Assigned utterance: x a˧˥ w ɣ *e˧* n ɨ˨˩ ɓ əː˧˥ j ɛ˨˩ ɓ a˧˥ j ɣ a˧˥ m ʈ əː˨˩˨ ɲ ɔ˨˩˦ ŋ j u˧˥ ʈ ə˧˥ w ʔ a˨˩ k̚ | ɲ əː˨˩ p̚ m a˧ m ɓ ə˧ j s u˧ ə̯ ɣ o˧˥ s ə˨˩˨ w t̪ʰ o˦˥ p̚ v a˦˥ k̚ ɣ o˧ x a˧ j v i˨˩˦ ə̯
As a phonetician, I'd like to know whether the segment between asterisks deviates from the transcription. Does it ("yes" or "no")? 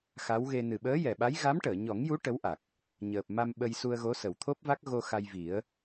no